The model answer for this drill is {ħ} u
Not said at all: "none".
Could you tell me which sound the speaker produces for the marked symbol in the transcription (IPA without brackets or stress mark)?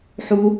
ħ